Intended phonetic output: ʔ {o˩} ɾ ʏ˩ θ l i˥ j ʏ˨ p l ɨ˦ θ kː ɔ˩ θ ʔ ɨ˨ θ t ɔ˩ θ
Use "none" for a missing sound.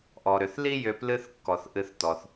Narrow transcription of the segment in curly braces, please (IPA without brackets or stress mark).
ɔ˩